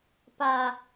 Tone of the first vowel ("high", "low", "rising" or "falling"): high